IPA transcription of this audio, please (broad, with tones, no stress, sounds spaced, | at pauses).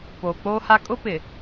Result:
p oː˨ k͡p oː˦ h a˦ kʼ ʊ˦ p ɪ˨